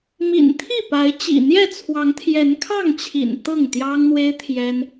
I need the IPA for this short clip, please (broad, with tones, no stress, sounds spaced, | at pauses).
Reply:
m ḭ˨˩ n t̪ʰ i˥˨ p a˨˦ ɪ̯ t͡ɕ ḭ˨˩ n̪ j ɛ˥˨ t͡sʰ w ɑ˨˦ ŋ t̪ʰ j ɛ˨˦ n kʰ ɑ˥˨ ŋ t͡ɕʰ ḭ˨˩ n t̪ ɤ˥˨ ŋ t̪ j ɑ˦ ŋ n̪ w e˦ ɪ̯ t̪ʰ j ɛ˦ n